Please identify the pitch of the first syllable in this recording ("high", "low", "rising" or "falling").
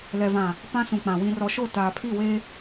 low